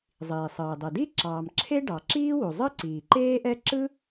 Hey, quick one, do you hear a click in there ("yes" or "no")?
yes